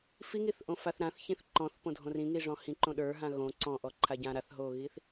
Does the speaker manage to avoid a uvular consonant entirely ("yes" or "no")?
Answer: yes